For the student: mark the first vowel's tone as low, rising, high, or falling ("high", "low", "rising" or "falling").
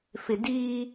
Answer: low